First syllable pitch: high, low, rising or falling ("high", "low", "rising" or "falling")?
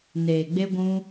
low